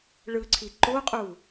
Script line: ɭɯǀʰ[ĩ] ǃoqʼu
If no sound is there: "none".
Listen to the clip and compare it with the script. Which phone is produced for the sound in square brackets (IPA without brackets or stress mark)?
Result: i